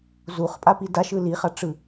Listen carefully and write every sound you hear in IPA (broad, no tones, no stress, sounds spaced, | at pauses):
z u χ pʼ a p i d a ʃ ɯ l i χ a ʈ͡ʂ ɯ